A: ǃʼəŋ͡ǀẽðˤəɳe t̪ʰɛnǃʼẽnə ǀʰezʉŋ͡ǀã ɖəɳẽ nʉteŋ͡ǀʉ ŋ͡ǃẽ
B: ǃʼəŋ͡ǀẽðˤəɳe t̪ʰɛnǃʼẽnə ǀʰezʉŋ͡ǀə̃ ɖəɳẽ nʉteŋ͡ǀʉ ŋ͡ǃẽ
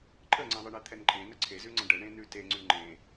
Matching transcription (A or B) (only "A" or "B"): B